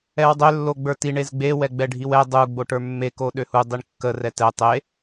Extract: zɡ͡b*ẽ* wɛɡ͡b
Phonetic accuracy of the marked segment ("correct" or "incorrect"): incorrect